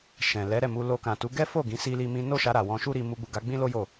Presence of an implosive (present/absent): absent